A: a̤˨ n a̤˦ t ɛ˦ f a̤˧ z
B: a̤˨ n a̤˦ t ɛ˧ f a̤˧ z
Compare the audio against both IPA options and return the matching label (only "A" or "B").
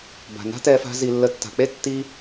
B